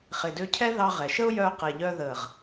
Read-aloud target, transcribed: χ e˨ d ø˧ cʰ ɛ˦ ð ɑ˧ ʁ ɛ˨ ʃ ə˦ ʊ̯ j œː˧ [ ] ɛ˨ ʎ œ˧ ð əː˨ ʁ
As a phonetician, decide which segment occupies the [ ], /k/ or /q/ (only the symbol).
q